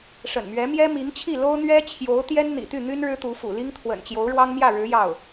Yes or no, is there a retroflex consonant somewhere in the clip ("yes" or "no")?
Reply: yes